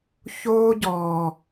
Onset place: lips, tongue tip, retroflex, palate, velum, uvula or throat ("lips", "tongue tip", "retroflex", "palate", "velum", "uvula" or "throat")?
palate